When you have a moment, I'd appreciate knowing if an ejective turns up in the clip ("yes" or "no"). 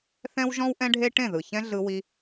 no